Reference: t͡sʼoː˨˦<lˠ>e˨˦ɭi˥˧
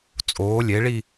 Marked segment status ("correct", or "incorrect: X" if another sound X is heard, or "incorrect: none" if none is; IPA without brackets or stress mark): incorrect: lʲ